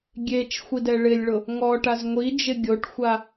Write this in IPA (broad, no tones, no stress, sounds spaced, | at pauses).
ɡʲ e t͡ʃ xʷ i d ɛ ɭ ɪ lʲ ɭ ʊ | ŋ ɔ ʈ a z ŋʷ i d͡ʒ ɪ ɡʲ o ʈ xʷ a